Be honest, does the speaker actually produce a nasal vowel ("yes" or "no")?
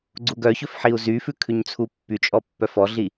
no